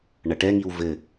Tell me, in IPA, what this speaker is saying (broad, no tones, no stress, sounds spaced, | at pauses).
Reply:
ɳ ɐ ʈ ɛ ŋ i w v ɘ